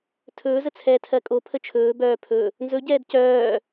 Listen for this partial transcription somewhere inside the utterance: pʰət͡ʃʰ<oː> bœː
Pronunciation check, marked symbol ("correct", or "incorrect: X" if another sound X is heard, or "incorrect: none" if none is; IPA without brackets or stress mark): incorrect: ɵː